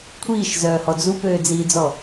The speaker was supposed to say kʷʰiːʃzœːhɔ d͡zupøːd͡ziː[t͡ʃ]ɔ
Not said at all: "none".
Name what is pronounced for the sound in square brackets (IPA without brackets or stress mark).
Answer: d͡z